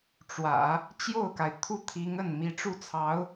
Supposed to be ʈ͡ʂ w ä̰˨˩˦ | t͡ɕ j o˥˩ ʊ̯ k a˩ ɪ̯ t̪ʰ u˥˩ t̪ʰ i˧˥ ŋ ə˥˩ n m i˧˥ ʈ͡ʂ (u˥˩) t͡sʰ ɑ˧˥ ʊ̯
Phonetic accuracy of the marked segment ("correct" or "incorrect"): correct